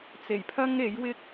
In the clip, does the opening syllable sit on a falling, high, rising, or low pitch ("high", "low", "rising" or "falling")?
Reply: low